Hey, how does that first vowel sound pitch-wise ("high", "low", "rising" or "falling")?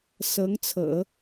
rising